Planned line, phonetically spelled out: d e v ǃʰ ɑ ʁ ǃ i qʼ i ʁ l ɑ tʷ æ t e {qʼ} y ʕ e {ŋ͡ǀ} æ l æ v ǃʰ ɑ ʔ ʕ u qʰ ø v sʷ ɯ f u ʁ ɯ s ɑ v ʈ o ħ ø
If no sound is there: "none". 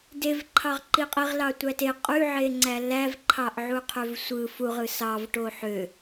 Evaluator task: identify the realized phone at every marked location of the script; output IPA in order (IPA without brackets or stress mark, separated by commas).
qʼ, ŋ͡ǀ